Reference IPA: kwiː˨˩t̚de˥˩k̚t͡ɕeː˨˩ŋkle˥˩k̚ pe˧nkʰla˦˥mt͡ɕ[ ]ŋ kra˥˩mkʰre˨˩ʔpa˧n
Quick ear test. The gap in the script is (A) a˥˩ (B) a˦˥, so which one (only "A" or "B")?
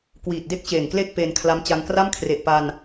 B